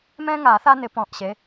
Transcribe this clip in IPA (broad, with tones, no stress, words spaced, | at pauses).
mɛ̃˥ŋa˨˩˦ θa˥nɪ˨˦pɔ̃˨˩ʔɕe˨˦